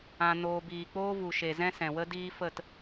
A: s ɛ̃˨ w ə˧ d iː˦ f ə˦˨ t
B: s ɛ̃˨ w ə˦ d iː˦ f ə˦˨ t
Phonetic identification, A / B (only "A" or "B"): B